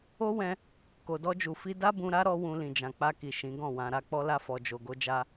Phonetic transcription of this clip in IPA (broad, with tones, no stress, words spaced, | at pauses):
o˦wɛ̃˧ | ko˨dɔ˧d͡ʒu˨ fi˧ da˦bũ˧ɾa˦ ɾɔ˦wũ˧ lĩ˨d͡ʒã˨k͡pa˧ki˨ ʃĩ˨˦ɡɔ̃˦˨wã˧ ɾa˧k͡pɔ˧la˧ fɔ˨d͡ʒo˨ ɡo˧d͡ʒa˧